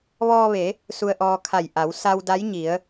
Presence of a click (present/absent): absent